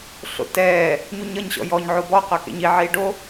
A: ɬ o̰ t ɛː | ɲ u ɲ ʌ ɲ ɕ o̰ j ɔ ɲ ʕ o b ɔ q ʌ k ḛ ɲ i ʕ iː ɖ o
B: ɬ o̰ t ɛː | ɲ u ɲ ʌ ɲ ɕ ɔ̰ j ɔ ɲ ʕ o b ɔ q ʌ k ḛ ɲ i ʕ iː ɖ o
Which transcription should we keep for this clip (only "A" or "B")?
B